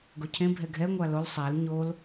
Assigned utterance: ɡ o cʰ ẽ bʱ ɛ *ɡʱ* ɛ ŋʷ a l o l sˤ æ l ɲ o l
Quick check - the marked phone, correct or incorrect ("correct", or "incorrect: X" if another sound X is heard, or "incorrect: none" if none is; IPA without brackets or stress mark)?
correct